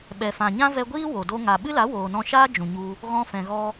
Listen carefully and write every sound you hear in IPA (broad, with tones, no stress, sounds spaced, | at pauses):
ɓ ɛ˨ f ã˨ ɲ ã˦ v ɛ˧ ɡʷ iː˦ w o˨ d o˦ ŋ a˨ ɓ ɨ˦ l a˨˦ w oː˨ n ɔ̃˧ ʃ aː˦ d͡ʒ ũ˨ ɲ u˧ | ɣ ɔ̃˧ f ɛ̃˨ ɣ ɔ˧